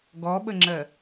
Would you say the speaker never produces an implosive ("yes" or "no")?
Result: no